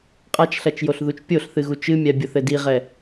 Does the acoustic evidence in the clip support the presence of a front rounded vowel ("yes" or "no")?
no